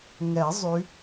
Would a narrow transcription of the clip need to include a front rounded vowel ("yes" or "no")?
yes